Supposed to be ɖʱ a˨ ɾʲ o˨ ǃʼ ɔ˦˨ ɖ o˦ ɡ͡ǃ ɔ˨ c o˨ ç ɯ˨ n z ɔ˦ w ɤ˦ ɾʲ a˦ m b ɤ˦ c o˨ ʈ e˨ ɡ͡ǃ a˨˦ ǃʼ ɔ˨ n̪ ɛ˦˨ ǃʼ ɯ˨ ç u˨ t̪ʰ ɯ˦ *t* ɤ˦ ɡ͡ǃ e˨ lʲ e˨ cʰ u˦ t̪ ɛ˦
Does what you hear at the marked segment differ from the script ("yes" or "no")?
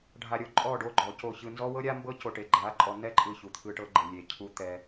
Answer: yes